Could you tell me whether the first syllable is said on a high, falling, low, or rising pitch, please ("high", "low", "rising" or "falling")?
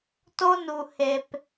high